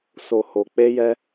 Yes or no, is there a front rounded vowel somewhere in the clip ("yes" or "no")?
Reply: no